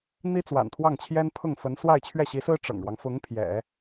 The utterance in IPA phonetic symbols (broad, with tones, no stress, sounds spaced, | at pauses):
n̪ i˥ t͡s w a̰˨˩ n t̪ʰ w ɑ˥˩ ŋ t͡ɕʰ j ɛ˥ n pʰ ʊ˥˩ ŋ f ə˧˥ n s w a˥˧ ɪ̯ t͡ɕʰ ɥ ɛ˥˩ ɕ i˧˥ s ɹ̩˥ ʈ͡ʂ ɤ̰˨˩ ŋ ɻ w ɑ˦ ŋ f ʊ˧˥ ŋ pʰ j ɛ̰˨˩˦